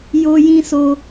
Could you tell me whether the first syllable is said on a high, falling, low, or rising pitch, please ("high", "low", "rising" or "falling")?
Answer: high